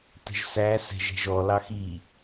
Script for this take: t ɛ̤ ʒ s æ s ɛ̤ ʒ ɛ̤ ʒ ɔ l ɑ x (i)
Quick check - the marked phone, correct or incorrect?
correct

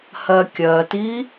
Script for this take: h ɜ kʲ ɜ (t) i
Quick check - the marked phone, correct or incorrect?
correct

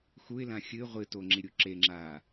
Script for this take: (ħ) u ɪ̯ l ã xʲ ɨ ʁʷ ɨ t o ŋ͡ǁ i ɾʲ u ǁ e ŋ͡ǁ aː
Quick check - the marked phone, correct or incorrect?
incorrect: x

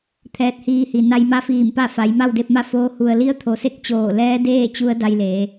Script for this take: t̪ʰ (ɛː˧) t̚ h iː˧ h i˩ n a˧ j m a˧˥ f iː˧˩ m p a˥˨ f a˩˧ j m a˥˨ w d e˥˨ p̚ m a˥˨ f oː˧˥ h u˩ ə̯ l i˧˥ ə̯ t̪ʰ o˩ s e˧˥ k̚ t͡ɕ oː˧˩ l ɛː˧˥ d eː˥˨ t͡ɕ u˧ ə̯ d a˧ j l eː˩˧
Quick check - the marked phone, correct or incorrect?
correct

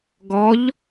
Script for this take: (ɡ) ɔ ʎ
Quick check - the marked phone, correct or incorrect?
correct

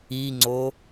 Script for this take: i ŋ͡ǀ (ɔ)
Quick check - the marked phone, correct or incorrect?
incorrect: o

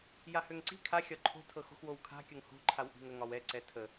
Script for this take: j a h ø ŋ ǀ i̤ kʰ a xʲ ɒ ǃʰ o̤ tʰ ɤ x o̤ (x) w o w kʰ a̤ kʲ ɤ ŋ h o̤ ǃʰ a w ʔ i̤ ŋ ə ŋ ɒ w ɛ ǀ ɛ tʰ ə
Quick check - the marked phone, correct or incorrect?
correct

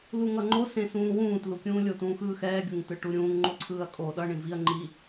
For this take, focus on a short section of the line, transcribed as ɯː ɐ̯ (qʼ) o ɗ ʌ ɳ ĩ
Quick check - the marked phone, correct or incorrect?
incorrect: kʼ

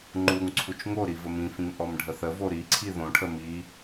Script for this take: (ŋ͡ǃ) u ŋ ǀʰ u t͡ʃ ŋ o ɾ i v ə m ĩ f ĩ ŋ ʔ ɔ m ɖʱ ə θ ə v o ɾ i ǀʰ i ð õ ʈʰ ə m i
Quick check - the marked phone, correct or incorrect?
correct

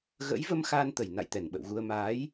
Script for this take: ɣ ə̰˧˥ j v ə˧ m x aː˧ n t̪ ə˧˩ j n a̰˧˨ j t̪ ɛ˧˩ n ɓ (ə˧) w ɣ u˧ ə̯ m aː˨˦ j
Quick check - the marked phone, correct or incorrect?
incorrect: ə̰˧˨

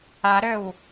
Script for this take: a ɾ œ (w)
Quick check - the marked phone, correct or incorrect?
correct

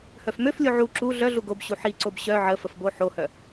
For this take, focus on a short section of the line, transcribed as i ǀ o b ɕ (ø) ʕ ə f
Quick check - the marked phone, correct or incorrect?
incorrect: œ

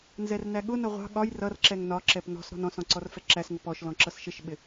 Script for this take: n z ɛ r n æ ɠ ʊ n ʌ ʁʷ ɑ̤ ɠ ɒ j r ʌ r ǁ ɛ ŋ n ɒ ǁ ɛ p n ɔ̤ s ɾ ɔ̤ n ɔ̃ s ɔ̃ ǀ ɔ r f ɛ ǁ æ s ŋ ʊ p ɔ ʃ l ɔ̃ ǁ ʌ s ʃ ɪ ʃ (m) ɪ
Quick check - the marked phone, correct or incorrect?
incorrect: ɓ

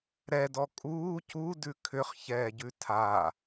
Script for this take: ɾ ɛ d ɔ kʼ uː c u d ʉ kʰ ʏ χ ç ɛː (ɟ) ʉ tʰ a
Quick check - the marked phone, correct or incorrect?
correct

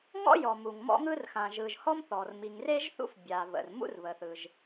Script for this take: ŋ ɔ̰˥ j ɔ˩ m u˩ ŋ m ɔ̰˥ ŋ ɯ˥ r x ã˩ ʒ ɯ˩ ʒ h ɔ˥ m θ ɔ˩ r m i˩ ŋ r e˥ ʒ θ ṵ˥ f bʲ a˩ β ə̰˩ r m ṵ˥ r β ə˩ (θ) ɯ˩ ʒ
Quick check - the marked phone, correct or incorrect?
correct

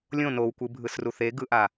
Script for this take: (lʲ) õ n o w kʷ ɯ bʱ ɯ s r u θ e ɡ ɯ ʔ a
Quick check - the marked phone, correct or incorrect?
correct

